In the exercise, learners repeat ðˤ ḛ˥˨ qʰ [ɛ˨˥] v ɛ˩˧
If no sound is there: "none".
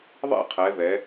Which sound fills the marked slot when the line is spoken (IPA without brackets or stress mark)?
ɛ˩˧